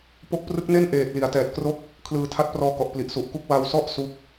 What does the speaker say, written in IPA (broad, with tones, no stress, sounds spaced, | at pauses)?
p o˦˥ k̚ p r ɯ˦˥ k̚ n e˥˩ n ʔ eː˨˩ t̚ l i˩˦ a̯ t ɛː˨˩ t̚ k r o˥˩ k̚ | kʰ l ɯː˨˩ tʰ a˦˥ t̚ p r ɔː˦˥ k ɔ˨˩ ʔ p l i˨˩ ʔ s u˨˩ ʔ k u˥˩ k̚ w a˧ w s ɔ˥˩ ʔ s u˥˩ k̚